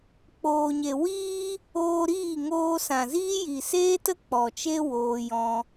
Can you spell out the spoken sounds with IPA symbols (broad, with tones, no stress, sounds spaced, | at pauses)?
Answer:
k͡p oː˨ ɲ e˨ w iː˦ | oː˧ ɾ iː˦˨ ŋ oː˧ s ã˨ z iː˦ j i˨ s eː˦ t ə˦ k͡p ɔ˨ t͡ʃ e˦ w oː˧ j ɔ̃˧